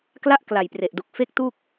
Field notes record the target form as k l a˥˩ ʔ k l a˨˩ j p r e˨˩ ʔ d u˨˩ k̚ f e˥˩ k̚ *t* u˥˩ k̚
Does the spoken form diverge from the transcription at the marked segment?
no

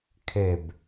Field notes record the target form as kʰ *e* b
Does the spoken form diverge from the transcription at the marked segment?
no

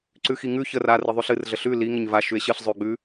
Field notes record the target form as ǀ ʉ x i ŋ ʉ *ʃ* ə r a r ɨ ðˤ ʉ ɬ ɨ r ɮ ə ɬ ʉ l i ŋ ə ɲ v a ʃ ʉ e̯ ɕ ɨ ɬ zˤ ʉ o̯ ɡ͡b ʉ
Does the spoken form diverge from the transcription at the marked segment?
yes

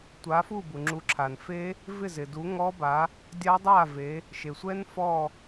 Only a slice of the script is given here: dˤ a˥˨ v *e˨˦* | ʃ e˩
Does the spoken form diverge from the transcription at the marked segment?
no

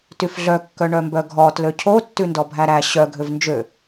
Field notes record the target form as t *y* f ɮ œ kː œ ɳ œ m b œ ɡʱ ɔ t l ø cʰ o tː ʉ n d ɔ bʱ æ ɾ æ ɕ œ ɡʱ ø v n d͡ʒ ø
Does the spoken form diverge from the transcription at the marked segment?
no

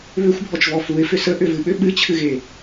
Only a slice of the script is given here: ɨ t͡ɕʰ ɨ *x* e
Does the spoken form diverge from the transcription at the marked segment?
yes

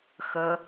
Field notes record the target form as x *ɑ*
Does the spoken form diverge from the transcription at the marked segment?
yes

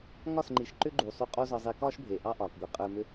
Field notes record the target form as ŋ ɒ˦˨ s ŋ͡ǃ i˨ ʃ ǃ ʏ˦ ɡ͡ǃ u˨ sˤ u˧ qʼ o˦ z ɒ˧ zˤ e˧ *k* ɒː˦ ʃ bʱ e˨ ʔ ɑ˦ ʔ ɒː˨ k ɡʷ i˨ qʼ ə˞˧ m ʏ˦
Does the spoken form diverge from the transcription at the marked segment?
no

